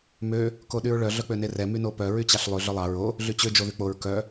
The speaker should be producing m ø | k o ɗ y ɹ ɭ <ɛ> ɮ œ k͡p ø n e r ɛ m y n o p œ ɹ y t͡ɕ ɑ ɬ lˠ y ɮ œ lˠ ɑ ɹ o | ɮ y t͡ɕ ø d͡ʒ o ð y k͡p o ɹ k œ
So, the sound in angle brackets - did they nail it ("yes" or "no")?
no